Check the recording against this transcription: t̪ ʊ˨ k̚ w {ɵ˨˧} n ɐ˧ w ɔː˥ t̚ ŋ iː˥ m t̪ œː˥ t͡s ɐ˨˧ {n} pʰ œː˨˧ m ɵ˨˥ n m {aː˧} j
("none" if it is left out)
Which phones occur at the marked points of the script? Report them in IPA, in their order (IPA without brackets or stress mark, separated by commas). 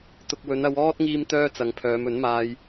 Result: ɵ˨˧, ŋ, aː˧